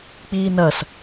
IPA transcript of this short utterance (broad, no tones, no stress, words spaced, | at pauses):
k͡piːnɐs